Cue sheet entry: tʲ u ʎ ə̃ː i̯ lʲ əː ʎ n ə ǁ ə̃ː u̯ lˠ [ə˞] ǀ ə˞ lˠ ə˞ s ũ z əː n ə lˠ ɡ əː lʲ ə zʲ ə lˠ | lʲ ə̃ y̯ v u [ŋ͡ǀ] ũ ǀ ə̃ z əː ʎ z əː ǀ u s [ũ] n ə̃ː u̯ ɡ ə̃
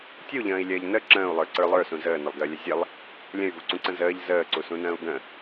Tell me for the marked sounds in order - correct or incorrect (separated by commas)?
correct, incorrect, correct